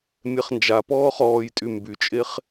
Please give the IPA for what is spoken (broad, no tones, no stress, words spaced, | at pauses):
mʲɛχnd͡ʒa pɔːχɔːjtʼy mbyt͡ʃʼeχ